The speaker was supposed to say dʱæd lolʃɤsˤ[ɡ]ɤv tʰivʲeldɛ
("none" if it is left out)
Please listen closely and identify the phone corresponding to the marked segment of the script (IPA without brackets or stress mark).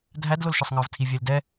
ŋ